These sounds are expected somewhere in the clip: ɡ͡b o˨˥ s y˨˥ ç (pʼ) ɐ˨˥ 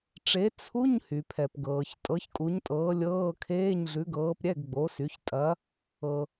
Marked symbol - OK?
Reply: no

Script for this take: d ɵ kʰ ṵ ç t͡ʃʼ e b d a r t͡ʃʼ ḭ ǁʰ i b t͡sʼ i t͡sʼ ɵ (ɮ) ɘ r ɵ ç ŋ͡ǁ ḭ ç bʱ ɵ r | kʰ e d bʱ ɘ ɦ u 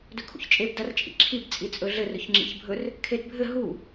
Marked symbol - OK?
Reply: yes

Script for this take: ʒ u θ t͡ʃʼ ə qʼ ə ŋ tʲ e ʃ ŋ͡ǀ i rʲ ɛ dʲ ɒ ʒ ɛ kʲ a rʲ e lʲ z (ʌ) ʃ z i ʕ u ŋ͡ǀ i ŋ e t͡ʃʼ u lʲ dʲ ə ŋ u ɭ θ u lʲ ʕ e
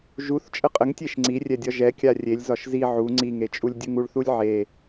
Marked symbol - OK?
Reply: no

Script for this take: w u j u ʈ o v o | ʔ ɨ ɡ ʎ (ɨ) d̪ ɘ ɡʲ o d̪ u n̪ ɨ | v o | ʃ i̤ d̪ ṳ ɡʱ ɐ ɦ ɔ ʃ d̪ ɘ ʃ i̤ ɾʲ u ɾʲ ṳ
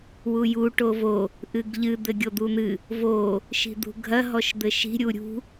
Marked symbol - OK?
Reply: yes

